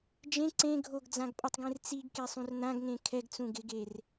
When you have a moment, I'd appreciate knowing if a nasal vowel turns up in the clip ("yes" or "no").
yes